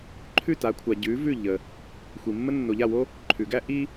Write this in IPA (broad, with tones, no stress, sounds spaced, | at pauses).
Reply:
ǃʰ ʉ˥˨ t a˨˥ kʷʰ a˨ ɟ ʉ˨˥ v ʉ˥˨ ʎ ə˨ | xʷ i˨ mː ə˥ nː o˨ ʎ a˥˨ w o˥ | ǃʰ ʉ˨˩˦ ɡ æ˥ ʔ i˥